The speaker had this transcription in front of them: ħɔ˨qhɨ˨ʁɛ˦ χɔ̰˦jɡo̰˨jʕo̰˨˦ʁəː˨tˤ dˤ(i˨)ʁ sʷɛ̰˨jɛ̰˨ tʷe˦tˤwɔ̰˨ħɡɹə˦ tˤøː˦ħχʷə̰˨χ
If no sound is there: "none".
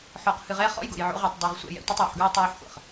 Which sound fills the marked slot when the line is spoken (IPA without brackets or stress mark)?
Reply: i˨